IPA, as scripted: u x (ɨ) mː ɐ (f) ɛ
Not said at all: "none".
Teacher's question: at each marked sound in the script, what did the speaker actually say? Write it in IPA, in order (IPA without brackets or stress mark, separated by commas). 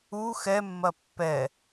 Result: ɛ, pː